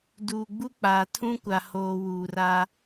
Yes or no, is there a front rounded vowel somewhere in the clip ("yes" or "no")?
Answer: no